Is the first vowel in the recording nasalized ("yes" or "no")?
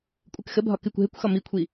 no